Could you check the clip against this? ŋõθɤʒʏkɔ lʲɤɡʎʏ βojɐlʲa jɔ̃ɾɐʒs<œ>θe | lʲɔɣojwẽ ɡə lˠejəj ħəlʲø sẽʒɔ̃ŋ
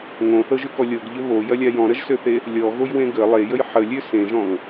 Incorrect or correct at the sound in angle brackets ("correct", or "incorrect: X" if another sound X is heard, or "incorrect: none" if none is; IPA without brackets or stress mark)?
incorrect: ø